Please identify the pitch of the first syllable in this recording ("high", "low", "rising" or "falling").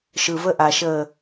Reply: low